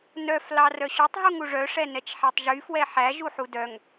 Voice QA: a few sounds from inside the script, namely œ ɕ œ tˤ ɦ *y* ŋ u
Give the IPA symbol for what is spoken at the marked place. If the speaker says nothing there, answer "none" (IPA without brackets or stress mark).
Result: u